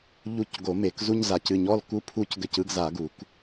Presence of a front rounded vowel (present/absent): absent